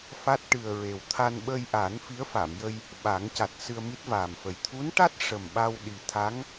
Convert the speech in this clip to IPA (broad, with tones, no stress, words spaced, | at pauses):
fa˦˥t̚ʈɨ˨˩ə̯ɹe˨˩w t̪ʰa˧nɓə˧jʔa˨˩˦n fi˧˥ə̯fa˨˩˨mjə˧j | ɓa˨˩˦ŋca˨˩t̚ sɨ˧ə̯mi˦˥t̚vaː˨˩mfə˨˩j t̪ʰu˧˥nʈa˦˥t̚ ʂə˨˩mɓa˧w ɗi˨˩t̪ʰa˧˥ŋ